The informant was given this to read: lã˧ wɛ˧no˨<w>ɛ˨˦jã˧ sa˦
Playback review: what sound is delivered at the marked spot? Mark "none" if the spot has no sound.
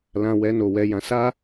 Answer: w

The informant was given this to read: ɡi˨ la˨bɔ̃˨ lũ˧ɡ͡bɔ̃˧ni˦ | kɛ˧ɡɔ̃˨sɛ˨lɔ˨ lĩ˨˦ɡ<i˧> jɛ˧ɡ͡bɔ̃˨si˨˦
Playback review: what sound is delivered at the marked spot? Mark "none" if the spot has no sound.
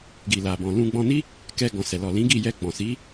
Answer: i˦˨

